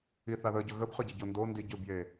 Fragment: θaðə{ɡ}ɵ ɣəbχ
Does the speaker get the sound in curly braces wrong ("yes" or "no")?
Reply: yes